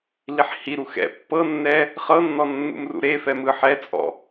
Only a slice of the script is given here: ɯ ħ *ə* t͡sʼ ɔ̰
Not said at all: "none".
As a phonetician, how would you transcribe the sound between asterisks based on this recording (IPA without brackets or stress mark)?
ɛ